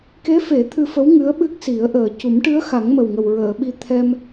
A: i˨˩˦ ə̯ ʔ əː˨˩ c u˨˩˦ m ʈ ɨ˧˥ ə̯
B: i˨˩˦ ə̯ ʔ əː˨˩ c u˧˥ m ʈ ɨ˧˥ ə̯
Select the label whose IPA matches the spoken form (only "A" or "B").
A